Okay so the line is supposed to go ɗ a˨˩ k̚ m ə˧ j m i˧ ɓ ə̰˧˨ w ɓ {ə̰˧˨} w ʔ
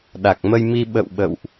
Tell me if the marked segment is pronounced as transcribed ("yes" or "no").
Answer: yes